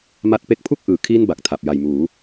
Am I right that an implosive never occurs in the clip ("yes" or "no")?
yes